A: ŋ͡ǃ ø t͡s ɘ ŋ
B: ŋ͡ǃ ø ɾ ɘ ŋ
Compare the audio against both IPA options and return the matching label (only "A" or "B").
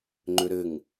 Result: B